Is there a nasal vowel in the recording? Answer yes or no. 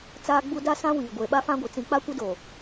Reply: yes